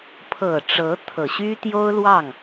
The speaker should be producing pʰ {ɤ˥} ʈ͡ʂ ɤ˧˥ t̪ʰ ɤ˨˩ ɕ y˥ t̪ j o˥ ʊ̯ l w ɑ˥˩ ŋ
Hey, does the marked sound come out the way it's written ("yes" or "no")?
no